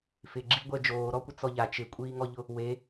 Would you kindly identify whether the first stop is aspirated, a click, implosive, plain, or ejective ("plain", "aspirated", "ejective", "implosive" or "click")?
click